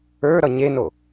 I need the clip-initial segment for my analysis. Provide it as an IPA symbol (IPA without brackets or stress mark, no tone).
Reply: ə˞